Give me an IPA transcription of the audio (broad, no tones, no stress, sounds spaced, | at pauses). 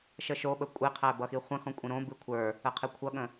ʃ ə ʃ o ɓ ə kʷʼ e qʰ æ b ʌ x i χʷ ə̃ x ɔ̃ kʷʼ ĩ ɾ õ b ɨ kʷʰ ə˞ | ə qʰ e kʷʰ ʌ ɠ ə̃